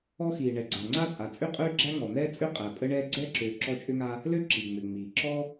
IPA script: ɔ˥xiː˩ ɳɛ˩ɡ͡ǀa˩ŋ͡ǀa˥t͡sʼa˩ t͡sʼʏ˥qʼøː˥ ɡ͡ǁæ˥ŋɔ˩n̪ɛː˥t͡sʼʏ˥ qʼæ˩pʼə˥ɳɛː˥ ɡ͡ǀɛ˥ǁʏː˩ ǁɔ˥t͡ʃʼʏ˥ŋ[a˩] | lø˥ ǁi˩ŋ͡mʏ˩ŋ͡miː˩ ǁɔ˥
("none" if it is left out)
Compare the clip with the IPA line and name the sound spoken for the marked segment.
a˥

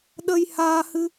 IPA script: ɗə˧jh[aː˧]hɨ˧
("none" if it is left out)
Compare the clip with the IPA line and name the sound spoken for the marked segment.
aː˧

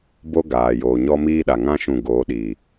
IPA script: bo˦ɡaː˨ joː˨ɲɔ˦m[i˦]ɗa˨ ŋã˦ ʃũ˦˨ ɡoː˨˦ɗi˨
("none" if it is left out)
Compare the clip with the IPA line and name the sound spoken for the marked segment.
iː˦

